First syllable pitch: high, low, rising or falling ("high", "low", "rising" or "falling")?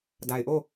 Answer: low